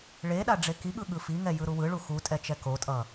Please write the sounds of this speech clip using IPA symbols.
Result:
ɭ e ɗ a ɖ͡ʐ e k i ɠ ɯ ɠ ɯ f i ŋ ɛ j ɯ ɾ u w ɯ ɭ u x u tʼ ɛ t͡ʃ ɛ k o tʼ ʌ

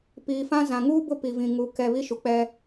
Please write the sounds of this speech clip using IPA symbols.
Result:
p iː˨ f ã˦ z ã˨ ŋ uː˦ b ʊ˦ p i˨ v ĩ˨ ŋ u˨ k ɛ˨ β i˦ ʃ u˨ k͡p ɛ˦

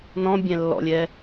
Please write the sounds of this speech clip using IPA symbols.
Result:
n ɔ̃ bʲ ɛ̃ lː ɔ̰ lʲ ɛ

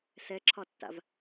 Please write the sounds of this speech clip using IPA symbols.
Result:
s ɛ ǁʰ ɒ tː a̰ v

